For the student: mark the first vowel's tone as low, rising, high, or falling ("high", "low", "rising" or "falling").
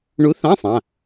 rising